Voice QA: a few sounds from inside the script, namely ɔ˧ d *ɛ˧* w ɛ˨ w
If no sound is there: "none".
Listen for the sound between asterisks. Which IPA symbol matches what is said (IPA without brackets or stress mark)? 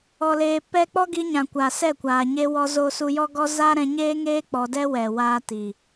ɛ˦